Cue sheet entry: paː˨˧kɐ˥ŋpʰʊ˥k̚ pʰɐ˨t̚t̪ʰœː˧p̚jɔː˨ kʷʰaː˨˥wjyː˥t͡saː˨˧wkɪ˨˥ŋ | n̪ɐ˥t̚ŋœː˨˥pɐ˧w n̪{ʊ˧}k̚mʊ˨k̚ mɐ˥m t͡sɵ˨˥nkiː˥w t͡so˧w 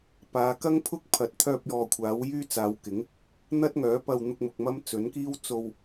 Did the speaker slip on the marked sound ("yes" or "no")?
no